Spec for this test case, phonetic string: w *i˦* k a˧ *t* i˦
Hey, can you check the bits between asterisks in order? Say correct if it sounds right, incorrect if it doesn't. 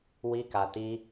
correct, correct

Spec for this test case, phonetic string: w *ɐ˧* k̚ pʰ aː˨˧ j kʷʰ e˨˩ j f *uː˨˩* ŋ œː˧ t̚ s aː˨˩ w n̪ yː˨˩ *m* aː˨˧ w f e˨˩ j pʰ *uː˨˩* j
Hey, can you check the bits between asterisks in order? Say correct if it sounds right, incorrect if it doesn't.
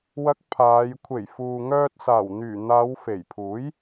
incorrect, incorrect, incorrect, incorrect

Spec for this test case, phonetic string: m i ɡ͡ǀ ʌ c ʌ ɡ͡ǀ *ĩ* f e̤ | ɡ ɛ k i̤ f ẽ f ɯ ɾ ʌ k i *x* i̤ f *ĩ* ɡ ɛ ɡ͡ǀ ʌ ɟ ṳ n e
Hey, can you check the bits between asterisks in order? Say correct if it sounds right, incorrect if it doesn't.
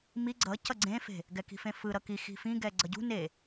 incorrect, correct, correct

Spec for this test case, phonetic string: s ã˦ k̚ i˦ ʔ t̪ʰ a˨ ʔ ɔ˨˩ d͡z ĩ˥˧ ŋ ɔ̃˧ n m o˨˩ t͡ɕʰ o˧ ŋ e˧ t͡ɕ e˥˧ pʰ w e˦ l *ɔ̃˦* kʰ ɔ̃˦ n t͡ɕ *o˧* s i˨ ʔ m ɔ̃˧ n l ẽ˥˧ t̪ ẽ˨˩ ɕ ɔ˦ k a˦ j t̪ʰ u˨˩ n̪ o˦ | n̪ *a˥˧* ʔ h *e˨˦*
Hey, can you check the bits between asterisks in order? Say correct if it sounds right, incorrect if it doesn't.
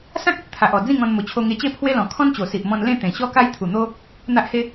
incorrect, incorrect, incorrect, incorrect

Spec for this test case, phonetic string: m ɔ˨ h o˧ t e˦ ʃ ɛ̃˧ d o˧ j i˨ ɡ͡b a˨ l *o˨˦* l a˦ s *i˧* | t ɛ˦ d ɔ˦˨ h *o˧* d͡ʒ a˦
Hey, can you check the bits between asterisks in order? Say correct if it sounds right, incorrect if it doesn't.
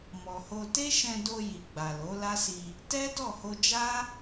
correct, correct, correct

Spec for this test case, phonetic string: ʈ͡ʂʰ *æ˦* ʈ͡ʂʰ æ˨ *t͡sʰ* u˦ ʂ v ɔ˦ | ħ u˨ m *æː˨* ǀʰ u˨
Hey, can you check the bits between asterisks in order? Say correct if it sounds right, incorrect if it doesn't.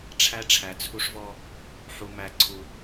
correct, correct, incorrect

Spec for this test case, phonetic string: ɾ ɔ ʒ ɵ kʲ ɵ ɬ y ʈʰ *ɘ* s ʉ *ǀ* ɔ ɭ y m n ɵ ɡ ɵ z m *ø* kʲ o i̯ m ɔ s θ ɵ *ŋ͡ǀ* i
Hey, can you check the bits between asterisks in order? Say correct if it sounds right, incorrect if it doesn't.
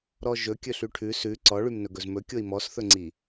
incorrect, correct, incorrect, correct

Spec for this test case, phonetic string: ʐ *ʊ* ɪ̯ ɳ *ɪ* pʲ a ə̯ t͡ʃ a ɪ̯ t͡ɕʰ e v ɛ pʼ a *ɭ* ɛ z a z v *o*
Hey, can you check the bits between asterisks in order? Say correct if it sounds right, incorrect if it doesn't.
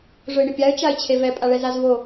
correct, correct, correct, correct

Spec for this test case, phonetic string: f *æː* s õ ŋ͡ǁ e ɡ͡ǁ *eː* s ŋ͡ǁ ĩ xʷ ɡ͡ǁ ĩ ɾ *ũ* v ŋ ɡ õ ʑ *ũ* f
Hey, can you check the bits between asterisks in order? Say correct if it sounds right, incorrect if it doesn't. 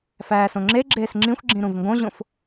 correct, correct, correct, incorrect

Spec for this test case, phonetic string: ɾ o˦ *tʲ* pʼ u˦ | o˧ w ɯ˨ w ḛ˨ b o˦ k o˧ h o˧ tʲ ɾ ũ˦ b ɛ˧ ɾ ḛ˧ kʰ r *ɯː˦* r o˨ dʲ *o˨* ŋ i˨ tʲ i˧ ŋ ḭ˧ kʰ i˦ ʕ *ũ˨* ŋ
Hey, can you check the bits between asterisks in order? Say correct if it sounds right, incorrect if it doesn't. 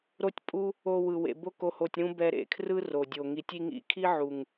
correct, incorrect, correct, incorrect

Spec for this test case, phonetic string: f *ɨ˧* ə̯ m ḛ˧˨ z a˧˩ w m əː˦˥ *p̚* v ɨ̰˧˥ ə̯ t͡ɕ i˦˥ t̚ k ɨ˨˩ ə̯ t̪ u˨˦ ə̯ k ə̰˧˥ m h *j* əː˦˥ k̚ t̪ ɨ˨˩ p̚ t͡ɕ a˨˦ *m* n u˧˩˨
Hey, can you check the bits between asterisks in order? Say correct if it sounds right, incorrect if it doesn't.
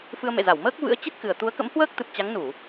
correct, incorrect, incorrect, incorrect

